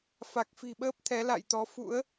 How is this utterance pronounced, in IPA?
f a˨˩ k̚ f i̤˨˩ ɓ əː˦˥ p̚ t̪ʰ ɛ˨˦ l a̰˧˨ j t̪ ɔ˨˦ f ṵ˧˥ ə̯

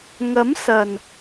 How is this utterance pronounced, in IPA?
ŋ ɐ˨˥ m s ɐ˨˩ n

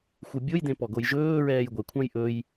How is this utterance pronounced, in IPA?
xʷ ɯ bʲ o j d ẽ p ɔ ɡ o j ʒ ɵː ɹ ɛː j ɡʷ ɛ kʷʰ ã j ʔ ɵ j

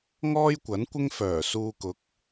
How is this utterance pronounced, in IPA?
ŋ ɔː˥ j kʷ ɐ˨˥ n kʷ ɪ˥ ŋ f œː˨˩ s uː˧ k ʊ˨˥ k̚

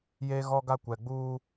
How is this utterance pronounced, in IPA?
j e˦ ɣ ɔ˦ ɡ a˦ kʷ ɛ˨ ɡ͡b uː˦

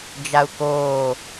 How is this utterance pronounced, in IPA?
d͡ʒ a u̯ k oː

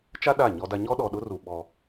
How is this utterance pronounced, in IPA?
t͡ʃ a˦ ɗ a˦˨ ɲ ɔ˦ d a˦ ɲ ɔ˦ ɗ ɔ˨ ɗ ʊ˦ r u˨ ɓ ɔ˦

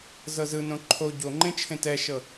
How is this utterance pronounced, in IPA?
z ɤ z ɯ n õ ǃʰ o ɟ o ŋ͡ǃ ẽ t͡ʃʰ ẽ t ɛ ʃ ɤ

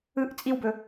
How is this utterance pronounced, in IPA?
ɯ ʔ t͡sʼ i w b ɵ

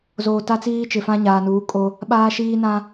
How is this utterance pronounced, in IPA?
z oː˨ t a˦ t͡s iː˦ t͡ʃ ɪ˨ f ã˦ ɲ aː˨ n uː˨˦ kʼ o˦ | ɓ aː˦ ʃ iː˦ n ã˦

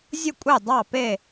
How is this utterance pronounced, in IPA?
zʲ ʊ˥˨ kʷʼ e˥˨ dˤ ɑ˥˨ p e˥˨

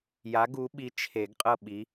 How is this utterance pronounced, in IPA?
j a˨˦ ɡ u˨˦ ɓ i˨˦ t͡ʃʰ e˨˩˦ ɡ qʼ ɤ˦˨ ɓ i˨˦

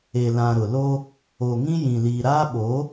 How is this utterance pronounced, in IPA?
e˨ l ã˨ ɾ ʊ˨ l o˦ | o˨ ŋ ĩ˦ j ĩ˨ l iː˨ ɾ aː˦ ɓ o˨˦

